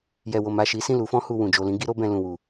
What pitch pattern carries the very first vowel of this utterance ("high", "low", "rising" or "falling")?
low